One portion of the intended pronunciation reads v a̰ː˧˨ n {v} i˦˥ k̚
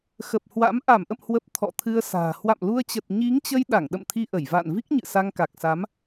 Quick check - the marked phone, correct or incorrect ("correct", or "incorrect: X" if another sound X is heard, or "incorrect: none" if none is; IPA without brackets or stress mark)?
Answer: correct